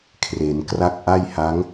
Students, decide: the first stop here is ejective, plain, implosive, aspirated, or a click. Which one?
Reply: aspirated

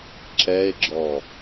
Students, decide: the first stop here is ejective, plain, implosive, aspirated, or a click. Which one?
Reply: click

